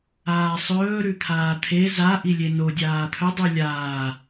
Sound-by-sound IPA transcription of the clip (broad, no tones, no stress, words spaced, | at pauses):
aːsˤɵː ɾʉt̪ʰaːt̪ʰe za ʔilʲeno dʲaːt̪ʰɵ dˤʉlʲaː